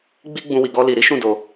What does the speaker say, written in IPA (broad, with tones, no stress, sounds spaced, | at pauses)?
ɡ͡b i˦ ɡ͡b ũ˧ w i˨ ɡ ɔ˧ l i˨ ɾ i˨˦ ʃ ũ˦˨ d o˧